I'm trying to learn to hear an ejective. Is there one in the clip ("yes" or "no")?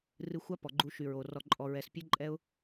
yes